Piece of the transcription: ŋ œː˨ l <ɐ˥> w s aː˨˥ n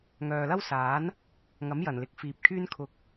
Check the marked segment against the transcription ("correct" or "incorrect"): correct